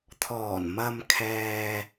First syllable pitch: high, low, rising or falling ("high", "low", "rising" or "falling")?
low